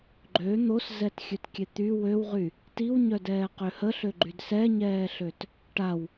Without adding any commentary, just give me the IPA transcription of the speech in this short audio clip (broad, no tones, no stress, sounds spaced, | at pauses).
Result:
ɡ͡ǃ ø n̪ o s z ɛ t xʲ ø t kʲ e t̪ y w ø w ʁ y | t i w ɲ œ d ɛː q ø h ə ɬ ø ɡ͡ǃ y d s ɛ ɲ ɛː ɬ ø t | ʈ a w